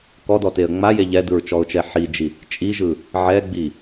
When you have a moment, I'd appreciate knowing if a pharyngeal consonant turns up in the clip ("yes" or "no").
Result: yes